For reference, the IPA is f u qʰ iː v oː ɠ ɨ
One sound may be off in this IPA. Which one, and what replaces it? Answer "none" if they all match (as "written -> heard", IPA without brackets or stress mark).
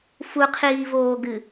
ɠ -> ɡ